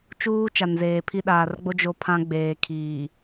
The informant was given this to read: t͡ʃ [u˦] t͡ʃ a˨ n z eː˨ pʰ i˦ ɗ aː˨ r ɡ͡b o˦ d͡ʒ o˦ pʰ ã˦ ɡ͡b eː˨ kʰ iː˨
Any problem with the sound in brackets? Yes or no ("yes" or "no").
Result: yes